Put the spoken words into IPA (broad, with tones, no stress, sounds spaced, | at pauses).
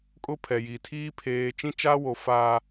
kʼ ʊ˦ pʰ ɛ˨ j i˨ tʰ iː˦ pʰ eː˦ t͡ʃ ĩ˦ t͡ʃ aː˦ w o˨ f a˨